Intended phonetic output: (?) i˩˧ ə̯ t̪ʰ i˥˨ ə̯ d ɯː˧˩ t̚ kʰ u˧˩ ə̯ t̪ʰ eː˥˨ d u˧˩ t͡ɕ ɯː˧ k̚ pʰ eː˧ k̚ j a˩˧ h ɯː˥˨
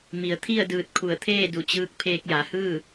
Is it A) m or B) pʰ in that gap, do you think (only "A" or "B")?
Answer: A